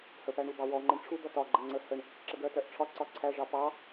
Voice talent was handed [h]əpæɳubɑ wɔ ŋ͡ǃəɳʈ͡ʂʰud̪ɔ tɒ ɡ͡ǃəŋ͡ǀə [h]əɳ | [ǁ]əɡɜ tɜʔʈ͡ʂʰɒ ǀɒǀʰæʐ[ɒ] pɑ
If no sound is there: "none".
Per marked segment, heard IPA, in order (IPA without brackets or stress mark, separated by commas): h, h, ǁ, ɑ